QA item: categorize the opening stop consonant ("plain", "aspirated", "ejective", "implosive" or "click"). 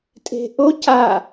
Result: ejective